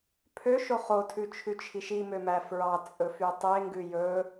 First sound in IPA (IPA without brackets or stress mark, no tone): pʰ